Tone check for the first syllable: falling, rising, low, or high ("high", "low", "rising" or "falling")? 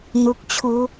low